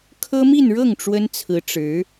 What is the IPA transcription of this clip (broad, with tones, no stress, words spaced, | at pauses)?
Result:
kʰɤ˥mi˥˧nɻɤ˥˩ŋ ʈ͡ʂwə˥nt͡sʰɹ̩˧˥ ʈ͡ʂɻ̩˧˥